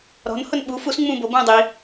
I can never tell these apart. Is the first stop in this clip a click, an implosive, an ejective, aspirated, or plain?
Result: implosive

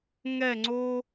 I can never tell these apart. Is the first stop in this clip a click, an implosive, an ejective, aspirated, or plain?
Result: click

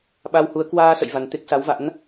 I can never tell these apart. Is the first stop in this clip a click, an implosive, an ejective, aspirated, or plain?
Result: implosive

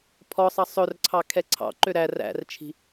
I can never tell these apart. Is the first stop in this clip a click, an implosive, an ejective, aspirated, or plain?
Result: aspirated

